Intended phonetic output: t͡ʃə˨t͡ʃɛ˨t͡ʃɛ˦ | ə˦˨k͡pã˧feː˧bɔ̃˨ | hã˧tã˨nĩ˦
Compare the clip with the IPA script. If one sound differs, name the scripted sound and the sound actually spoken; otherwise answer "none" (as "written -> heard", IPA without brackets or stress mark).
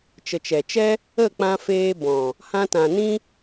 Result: none